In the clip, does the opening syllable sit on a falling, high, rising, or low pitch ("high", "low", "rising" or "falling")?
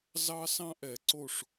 high